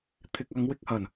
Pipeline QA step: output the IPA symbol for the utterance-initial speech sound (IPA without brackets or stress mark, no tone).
t̪ʰ